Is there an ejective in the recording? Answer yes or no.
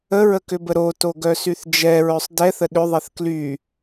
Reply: no